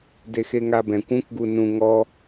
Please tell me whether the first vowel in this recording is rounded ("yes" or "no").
no